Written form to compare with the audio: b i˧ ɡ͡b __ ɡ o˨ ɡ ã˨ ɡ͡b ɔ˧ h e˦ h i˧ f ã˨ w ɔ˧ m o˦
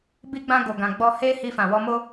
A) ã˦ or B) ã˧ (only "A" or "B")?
B